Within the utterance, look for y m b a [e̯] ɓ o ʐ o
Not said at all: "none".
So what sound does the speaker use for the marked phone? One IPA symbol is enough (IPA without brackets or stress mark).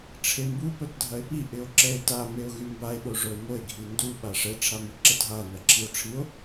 e̯